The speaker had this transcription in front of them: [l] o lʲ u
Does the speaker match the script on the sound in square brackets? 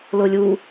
yes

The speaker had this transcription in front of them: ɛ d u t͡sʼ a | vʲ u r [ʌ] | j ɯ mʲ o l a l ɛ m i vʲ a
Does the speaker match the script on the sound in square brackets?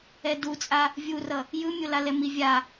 yes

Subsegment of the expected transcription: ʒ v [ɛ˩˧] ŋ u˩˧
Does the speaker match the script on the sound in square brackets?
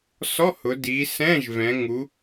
no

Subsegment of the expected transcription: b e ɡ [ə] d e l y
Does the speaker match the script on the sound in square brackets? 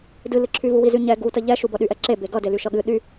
no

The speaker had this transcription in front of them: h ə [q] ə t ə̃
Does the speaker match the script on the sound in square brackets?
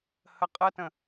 no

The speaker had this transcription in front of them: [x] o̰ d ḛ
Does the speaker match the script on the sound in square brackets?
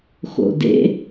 yes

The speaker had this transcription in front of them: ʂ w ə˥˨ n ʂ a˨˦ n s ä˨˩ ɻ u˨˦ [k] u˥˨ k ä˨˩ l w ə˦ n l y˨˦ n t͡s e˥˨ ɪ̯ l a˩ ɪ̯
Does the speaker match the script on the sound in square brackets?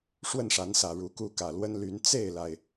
yes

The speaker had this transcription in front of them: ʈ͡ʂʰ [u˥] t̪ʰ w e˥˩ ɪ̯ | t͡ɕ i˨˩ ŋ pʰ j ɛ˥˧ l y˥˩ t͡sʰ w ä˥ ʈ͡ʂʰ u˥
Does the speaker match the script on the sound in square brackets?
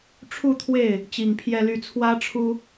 no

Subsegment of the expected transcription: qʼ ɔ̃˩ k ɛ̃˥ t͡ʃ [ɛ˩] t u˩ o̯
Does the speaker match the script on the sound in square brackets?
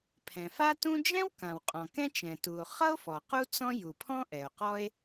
no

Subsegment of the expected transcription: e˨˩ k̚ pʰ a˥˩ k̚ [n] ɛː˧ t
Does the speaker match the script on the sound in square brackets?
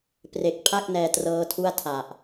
yes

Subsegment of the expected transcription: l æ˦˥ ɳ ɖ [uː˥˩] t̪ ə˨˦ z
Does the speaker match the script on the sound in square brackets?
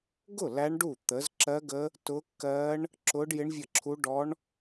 no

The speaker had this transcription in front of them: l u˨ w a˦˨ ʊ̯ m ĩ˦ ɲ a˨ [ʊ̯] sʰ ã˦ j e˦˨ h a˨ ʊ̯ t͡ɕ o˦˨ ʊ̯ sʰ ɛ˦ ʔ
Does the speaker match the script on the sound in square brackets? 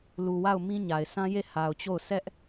no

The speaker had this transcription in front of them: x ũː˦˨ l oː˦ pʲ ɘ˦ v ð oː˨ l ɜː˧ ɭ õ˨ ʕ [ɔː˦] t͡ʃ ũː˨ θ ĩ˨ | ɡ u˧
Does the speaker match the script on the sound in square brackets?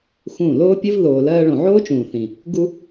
no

